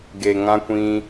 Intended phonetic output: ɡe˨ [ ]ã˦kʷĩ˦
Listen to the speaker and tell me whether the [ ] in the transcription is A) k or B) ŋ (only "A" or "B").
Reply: B